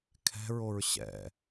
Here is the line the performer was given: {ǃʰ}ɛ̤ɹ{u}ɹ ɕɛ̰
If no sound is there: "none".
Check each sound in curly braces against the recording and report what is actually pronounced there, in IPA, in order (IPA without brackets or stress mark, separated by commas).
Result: kʰ, o